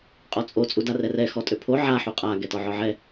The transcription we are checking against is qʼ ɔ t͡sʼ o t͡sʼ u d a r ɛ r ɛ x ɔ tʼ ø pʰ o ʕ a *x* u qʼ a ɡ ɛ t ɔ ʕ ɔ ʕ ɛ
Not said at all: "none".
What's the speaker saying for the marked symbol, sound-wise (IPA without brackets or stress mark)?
ħ